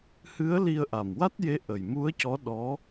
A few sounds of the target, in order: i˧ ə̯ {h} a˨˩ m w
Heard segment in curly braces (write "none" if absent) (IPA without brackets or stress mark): ʔ